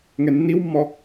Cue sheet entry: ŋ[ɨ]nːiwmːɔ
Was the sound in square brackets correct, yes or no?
no